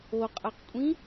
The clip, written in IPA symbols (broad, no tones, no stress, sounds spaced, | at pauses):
o qʼ a q kʷʼ ĩ